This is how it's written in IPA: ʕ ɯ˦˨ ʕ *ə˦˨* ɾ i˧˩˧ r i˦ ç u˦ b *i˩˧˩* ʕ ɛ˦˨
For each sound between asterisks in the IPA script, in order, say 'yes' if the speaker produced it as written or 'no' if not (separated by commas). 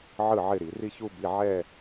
no, yes